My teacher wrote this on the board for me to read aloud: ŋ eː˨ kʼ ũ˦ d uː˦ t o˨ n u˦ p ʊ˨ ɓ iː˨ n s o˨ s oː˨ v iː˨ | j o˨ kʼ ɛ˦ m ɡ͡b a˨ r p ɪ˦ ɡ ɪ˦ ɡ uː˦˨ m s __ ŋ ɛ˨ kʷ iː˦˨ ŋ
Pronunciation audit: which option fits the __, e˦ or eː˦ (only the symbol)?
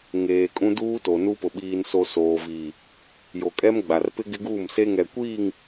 e˦